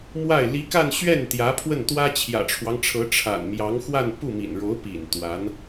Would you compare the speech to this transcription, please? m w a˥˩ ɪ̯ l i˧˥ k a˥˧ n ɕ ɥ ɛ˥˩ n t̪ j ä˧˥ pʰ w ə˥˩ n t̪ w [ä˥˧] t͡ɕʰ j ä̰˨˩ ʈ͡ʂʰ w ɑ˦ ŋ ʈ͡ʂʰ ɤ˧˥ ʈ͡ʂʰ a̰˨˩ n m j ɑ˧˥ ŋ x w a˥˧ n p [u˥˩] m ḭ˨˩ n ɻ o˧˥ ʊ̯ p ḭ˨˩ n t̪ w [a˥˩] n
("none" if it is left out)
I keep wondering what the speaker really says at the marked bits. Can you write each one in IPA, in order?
ä˥, u˥˩, a˧˥

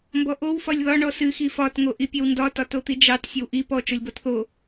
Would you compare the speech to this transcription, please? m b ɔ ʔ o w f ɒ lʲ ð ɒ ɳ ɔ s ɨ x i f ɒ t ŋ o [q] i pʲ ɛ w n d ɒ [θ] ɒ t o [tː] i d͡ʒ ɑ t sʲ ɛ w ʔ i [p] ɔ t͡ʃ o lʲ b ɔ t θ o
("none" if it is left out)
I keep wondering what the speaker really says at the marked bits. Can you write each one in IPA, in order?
ʔ, t, t̪, p

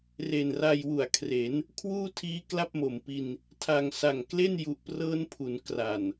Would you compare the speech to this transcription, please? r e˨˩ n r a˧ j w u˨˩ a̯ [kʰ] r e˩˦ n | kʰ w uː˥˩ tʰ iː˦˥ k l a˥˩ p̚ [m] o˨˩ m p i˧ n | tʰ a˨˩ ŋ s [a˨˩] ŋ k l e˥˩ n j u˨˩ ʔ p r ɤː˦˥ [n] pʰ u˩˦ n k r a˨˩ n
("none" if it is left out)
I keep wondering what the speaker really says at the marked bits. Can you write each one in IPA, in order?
kʰ, m, a˨˩, n

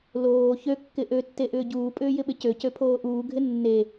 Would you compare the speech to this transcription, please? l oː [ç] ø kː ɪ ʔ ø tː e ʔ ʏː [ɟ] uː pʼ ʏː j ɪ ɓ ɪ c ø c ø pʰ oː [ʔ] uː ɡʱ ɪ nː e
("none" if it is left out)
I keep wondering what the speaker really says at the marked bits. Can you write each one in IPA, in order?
ç, ɟ, ʔ

